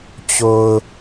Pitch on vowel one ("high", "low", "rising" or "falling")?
low